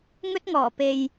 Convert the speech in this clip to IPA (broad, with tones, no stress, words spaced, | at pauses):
ŋɵ˥t̚ŋɔː˨˩ pe˨j